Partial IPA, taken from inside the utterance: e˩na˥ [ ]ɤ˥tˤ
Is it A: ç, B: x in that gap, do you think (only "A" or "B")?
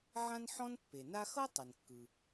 B